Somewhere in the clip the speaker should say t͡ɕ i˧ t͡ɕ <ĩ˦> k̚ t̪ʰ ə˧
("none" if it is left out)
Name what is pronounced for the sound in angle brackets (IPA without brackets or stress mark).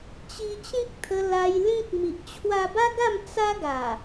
ĩ˦